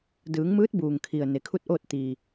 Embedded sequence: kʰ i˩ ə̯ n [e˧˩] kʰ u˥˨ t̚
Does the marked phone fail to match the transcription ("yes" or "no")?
yes